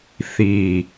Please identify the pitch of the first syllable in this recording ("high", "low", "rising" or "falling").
low